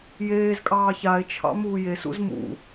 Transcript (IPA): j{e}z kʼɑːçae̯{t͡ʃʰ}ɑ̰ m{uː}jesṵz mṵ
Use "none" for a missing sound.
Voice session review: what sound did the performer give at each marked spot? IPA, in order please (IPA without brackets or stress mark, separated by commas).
eː, t͡ʃʰ, uː